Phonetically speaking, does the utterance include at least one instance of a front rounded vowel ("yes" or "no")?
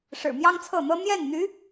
yes